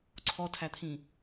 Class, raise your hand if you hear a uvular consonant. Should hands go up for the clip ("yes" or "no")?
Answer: no